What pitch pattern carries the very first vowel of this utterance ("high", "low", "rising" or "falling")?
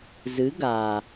rising